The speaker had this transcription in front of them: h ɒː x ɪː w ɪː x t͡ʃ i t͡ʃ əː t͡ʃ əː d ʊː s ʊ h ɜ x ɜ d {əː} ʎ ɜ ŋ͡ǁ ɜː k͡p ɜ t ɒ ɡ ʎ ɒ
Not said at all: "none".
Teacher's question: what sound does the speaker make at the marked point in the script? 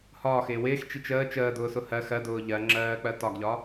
ʊː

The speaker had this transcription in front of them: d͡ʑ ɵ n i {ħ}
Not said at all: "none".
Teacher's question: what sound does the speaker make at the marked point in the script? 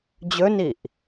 ʔ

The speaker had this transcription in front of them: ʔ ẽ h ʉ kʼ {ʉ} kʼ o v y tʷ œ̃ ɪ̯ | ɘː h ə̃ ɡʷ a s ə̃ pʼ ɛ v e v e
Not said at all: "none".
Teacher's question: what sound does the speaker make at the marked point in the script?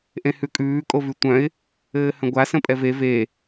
ʉː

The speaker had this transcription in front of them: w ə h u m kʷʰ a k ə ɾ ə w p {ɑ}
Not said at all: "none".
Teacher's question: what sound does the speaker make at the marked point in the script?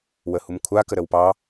ɑ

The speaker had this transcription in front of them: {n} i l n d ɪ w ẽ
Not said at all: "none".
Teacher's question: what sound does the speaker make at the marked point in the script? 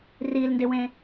r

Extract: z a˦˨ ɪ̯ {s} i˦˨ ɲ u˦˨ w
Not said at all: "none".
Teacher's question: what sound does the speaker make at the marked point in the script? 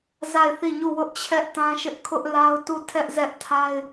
θ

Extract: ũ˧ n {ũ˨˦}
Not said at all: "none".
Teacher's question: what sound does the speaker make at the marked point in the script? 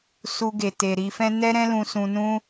ũ˦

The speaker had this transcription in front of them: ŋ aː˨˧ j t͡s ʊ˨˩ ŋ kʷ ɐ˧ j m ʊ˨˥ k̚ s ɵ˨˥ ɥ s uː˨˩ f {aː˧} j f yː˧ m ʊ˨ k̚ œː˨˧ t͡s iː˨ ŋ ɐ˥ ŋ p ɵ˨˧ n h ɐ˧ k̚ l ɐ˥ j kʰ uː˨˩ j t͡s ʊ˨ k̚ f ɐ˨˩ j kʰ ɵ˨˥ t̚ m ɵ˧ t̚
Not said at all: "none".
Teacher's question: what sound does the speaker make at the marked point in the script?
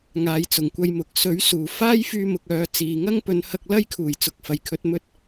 aː˥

